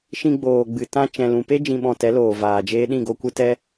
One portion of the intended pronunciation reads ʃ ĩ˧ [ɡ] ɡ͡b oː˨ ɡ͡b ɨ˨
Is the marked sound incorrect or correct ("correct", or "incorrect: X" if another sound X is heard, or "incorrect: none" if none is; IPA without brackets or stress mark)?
incorrect: none